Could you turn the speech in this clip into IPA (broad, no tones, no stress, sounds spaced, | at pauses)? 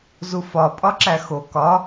z u f ɒ pʼ ɒ ǁ æ x o k ɒ